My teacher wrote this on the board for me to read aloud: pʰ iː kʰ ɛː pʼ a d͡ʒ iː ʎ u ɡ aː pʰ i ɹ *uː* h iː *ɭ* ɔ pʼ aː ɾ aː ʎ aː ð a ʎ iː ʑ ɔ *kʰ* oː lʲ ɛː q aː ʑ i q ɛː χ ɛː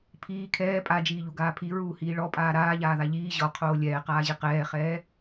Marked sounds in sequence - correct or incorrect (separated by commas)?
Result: correct, correct, incorrect